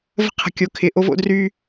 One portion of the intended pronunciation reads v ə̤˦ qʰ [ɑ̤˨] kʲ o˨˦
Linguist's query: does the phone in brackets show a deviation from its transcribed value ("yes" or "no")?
yes